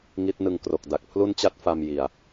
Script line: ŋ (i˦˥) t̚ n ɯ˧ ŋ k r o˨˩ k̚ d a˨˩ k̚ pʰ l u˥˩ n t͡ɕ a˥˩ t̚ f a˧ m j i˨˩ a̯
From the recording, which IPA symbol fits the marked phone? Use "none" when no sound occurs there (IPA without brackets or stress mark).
i˦˥